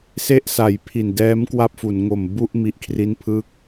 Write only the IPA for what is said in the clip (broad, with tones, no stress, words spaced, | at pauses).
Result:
se˦˥ʔ sa˨˩jpʰi˨˩ndɛː˦˥m kwa˥˩p̚fu˩˦n ŋo˨˩mbu˥˩ʔ mi˨˩ʔkʰri˦˥n pʰɯ˥˩k̚